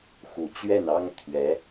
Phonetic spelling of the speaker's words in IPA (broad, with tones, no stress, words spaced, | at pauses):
xu˨˩t͡ɕɥɛ˥˩nɑ˥ŋ t̪ʰɥɛ˧˥